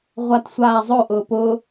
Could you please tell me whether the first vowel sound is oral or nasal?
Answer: oral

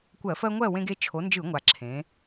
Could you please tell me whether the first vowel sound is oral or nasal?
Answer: oral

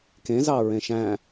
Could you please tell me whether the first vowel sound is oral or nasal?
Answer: nasal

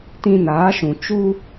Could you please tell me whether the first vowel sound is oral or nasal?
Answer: nasal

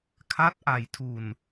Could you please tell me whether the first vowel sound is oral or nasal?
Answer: oral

